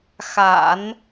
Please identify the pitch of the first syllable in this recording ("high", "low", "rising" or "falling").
low